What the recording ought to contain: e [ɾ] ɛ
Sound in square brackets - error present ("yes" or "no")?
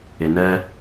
yes